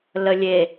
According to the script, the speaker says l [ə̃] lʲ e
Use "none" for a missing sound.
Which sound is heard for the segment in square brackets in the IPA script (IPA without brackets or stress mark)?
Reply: ə